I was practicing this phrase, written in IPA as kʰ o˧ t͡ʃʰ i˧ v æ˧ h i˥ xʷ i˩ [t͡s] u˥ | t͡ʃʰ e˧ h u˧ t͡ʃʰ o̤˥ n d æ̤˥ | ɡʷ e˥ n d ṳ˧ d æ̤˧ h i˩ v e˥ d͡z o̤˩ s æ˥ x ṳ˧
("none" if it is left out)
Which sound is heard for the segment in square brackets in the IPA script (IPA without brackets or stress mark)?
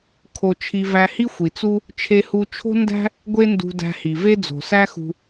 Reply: t͡s